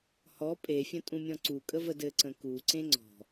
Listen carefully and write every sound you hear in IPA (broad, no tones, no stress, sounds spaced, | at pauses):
h ɔ pʼ e fʲ ə̃ tʼ ũ mʲ ɔ̃ ǀ u kʼ ə v ə d ɘ ǀ ə̃ k u ǀ ẽ ŋ͡ǀ ɔ̤